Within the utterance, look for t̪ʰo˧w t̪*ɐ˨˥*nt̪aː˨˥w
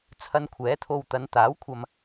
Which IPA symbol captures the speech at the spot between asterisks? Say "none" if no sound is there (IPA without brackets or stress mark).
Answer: ɐ˨˧